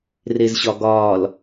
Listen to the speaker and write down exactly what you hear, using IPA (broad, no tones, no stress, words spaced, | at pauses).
rezɕɒɡɒːl